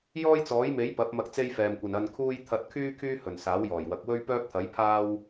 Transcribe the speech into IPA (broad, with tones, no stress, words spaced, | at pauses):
jɔː˥jt͡sɔː˨˥jme˨˥j pɐ˨˥p̚mɐ˧k̚ t͡se˥jfɛː˨mkʷɐ˨n ɐ˧nkʰuː˥j t̪ʰɐ˧t̚kʰyː˥ kʰyː˥hɵ˨˩n saː˨˥wjɔː˨˩jwɐ˨˥k̚ wɵ˥ɥpœː˥p̚t̪ʰɐ˨˥jpʰaː˥w